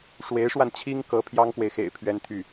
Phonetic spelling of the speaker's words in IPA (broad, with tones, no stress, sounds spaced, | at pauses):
ʂ w e˧˥ ɪ̯ ʂ w a˧ n t͡ɕʰ i˥ ŋ k ɤ˧˥ pʰ j ɑ˥ ŋ k w e˨ ɪ̯ x ḛ˨˩ ɪ̯ pʰ ɥ ɛ˥ n t̪ʰ y˥˩